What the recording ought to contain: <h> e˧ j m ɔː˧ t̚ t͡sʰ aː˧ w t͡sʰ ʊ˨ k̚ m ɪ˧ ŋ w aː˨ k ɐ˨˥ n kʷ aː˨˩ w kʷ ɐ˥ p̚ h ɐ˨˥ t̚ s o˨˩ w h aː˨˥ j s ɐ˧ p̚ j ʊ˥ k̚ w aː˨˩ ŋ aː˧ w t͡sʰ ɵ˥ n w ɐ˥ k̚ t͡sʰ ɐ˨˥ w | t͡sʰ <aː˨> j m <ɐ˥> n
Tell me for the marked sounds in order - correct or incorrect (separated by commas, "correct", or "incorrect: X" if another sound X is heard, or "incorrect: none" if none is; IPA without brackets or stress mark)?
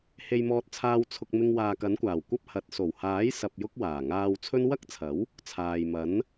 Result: correct, correct, incorrect: ɐ˨˥